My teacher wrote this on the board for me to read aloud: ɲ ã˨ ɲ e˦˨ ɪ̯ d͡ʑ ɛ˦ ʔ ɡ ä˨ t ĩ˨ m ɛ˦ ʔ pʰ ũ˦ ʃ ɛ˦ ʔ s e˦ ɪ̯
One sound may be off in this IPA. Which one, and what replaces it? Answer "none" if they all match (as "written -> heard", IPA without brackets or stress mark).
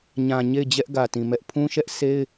none